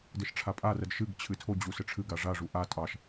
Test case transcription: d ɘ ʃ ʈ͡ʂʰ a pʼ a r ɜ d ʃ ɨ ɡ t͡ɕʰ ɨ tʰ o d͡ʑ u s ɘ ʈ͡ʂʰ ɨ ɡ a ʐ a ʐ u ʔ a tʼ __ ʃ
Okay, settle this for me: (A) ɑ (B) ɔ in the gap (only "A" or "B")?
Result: A